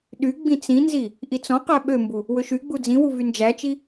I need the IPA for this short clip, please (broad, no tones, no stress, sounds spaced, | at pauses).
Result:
ɗ y ɡ͡b ĩ t͡s ĩ n z i | ʔ i t͡s ɔ̃ q æ ɓ ø m b u | w ɵ ʃ y ɡ͡b u d͡z ĩ w u v y n d͡ʒ æ t͡ʃ i